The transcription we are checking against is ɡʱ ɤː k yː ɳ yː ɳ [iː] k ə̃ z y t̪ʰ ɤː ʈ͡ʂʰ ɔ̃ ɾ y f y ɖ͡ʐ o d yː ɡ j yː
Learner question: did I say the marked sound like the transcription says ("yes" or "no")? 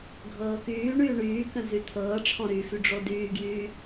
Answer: no